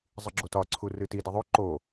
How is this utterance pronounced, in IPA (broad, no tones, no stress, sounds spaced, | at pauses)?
zˤ ɨ ɡ͡ǁ o t ɒ ǀʰ u r ɨ t i d i ðˤ o ǃ o